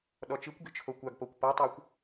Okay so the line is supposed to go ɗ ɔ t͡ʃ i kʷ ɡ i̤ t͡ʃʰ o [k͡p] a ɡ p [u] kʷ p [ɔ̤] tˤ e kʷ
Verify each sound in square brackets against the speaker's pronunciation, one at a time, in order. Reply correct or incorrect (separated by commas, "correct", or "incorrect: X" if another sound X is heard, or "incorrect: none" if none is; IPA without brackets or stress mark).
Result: incorrect: kʷ, incorrect: o, incorrect: ɔ